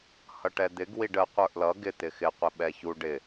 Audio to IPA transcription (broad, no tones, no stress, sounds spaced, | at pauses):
h ʌ ʈ ɛ d̪ ɪ ɡ w i ɖ ə qʷ ə˞ ʔ l ʌ ɡ ɪ t̪ ɪ x ɪ qʷ ɪ ɓ ɛ ç u ɖ ɪ